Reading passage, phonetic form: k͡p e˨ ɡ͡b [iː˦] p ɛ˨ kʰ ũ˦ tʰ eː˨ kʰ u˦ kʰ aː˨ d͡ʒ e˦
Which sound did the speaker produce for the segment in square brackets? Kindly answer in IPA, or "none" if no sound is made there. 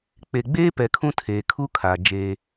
eː˦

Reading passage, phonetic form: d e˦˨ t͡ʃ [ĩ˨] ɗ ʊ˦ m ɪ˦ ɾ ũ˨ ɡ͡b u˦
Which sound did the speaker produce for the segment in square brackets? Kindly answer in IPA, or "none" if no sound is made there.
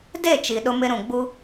i˨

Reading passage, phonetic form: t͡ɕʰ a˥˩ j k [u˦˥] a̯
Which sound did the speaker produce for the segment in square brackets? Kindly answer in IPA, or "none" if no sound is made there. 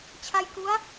u˦˥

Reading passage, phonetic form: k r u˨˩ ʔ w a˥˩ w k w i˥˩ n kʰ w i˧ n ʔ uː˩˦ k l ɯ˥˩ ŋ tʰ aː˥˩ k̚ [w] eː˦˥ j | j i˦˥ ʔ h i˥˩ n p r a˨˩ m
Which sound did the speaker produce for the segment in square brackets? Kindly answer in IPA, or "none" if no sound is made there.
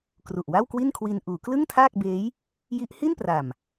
b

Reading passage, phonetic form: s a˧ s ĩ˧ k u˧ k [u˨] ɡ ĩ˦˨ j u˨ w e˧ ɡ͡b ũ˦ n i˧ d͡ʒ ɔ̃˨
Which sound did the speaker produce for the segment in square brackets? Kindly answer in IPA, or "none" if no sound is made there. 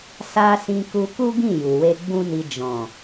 u˦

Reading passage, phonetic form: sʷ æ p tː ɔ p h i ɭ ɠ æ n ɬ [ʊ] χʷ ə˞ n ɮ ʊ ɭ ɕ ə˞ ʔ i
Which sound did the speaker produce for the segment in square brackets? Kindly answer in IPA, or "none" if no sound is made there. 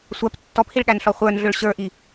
ɔ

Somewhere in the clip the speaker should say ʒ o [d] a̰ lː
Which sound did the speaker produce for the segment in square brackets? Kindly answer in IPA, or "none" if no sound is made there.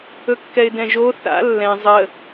θ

